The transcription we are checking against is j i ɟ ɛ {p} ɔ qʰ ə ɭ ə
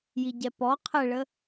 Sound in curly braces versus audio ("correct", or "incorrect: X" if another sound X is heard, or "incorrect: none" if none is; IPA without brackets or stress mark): correct